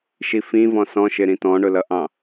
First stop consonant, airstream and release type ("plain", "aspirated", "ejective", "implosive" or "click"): plain